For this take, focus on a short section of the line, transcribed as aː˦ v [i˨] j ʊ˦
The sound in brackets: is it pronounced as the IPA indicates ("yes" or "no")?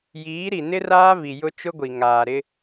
yes